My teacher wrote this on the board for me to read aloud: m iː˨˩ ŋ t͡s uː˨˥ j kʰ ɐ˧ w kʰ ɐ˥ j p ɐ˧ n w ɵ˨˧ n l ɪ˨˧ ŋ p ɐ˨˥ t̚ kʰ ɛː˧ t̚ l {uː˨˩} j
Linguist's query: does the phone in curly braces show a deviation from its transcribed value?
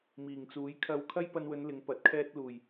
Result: no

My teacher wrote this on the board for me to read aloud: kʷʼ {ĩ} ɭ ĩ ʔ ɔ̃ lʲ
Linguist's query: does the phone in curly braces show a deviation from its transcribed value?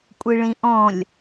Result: yes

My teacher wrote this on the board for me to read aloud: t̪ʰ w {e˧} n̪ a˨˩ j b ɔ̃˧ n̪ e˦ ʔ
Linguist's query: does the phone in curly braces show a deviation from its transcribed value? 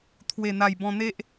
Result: yes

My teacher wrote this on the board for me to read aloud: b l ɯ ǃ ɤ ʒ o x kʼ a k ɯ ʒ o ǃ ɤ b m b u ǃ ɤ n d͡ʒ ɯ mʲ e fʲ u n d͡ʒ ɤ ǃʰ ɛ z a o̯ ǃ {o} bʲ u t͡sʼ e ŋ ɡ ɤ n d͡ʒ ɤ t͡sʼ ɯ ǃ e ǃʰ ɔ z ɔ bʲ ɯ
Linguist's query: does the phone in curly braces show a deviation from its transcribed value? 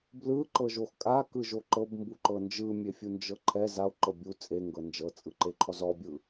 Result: yes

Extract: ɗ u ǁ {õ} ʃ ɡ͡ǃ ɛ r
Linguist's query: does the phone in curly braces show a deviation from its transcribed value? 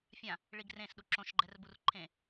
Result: no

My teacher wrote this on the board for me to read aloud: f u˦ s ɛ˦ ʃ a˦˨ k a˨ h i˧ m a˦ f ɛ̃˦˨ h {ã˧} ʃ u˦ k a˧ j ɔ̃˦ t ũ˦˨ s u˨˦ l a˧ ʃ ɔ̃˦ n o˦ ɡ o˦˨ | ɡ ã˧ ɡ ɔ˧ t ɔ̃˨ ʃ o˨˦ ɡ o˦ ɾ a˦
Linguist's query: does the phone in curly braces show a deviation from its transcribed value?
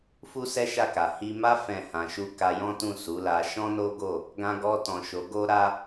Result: no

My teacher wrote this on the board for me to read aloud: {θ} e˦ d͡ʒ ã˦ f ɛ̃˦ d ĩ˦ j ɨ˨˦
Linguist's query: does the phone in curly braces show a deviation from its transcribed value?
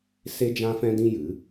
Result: yes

